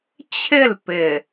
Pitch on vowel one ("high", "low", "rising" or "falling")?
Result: falling